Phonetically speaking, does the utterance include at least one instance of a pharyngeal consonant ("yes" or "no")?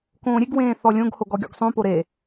no